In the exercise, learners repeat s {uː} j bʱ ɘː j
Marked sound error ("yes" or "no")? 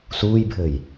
no